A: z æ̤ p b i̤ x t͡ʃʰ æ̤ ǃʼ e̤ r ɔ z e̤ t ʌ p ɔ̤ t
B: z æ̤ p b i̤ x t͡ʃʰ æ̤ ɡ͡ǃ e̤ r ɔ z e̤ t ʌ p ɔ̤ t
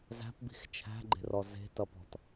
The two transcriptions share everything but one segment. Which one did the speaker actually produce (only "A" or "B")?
B